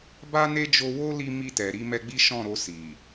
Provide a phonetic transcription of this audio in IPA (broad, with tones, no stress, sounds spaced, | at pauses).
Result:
b a˦ n e˦ d͡ʒ o˧ w o˦ l i˧ m i˧ t ɛ˨ ɾ i˧ m ɛ˧ ɡ͡b i˦ ʃ ɔ̃˦˨ ɾ o˧ s i˨